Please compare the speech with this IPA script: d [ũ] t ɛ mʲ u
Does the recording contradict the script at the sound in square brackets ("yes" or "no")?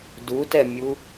yes